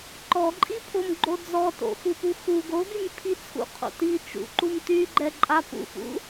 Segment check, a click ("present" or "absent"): present